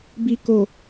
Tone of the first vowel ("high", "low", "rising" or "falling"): low